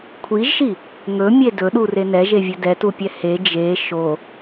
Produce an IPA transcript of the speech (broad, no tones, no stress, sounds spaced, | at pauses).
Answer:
kʷʰ i ʒ ʃ i | ŋ ɵ mʲ e d ɵ ɗ u r e n ɛ ʒ e vʲ ɵ d ɛ t u pʲ ɛ h e d͡ʒ e ʃ o